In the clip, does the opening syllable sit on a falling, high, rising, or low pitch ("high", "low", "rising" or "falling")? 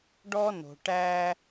high